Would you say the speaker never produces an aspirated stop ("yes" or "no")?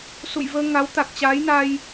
yes